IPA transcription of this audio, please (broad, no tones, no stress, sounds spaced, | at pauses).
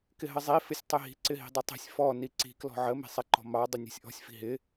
k ɪ ɦ ə zˤ i f ɪ sʲ tˤ ɪ ɦ i̤ ǀ ɪ ɦ i̤ dˤ ə tˤ i̤ sʲ f ɔ n i ǀ i̤ k l ɔ̤ ʕ ə m i̤ sˤ ɪ ǃ ɔ̤ m ɑ dˤ ɪ nʲ ɔ̤ sʲ ʔ ɔ̤ sʲ f i̤ ɦ ɪ